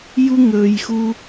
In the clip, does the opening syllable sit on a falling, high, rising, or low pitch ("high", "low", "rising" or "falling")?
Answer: high